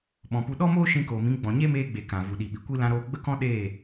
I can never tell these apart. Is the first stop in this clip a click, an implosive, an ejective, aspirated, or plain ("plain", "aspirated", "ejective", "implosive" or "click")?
implosive